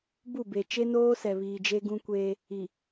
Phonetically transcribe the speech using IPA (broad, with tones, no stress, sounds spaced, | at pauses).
b u˦˨ b e˨ t͡ʃ e˦ n oː˦ s ɛ˨ β iː˨ d͡ʒ e˦ ɡ ũ˦ kʷ eː˦ | i˨